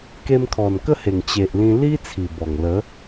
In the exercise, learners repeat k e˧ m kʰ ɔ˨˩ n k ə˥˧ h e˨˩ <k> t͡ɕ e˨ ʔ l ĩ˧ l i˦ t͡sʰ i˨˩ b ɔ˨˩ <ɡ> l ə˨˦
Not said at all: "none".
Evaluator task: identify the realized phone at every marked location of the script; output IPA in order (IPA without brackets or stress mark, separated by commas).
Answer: ŋ, ŋ